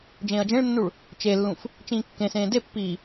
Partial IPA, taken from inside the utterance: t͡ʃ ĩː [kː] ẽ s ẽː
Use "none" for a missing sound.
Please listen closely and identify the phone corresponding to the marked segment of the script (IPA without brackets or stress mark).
kː